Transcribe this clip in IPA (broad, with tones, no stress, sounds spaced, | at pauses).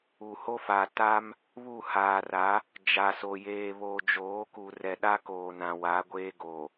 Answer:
u˨ h o˦ f a˨ t a˦ m | β u˦˨ h aː˨ r a˨˦ | d͡ʒ a˨ s o˨ j eː˨ β oː˨ d͡ʒ oː˨˦ k u˨ r ɛ˨ ɗ a˦ k oː˨ n ã˨ w a˨˦ ɡʷ eː˦ ɡ o˨